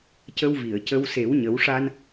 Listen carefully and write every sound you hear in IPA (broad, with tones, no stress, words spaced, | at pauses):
cə˧wvi˨˩˨ə̯cə˧w se˨˩˦wɲə˨˩˦wʂa˧n